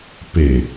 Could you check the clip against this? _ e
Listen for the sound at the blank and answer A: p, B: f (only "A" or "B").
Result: A